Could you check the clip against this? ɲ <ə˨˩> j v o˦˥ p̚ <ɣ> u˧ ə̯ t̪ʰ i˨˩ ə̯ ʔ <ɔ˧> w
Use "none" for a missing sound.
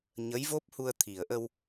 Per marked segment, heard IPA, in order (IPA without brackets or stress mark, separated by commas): ə˧˥, h, ə˧